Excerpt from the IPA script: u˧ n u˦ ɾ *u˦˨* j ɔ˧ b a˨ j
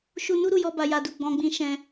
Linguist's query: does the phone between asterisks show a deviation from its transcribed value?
no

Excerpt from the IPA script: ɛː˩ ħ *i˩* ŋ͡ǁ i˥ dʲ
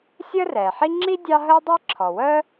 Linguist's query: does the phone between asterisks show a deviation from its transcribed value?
yes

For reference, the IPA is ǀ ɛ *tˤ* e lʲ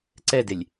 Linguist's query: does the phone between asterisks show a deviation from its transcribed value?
yes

